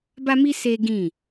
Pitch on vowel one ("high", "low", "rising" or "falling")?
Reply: high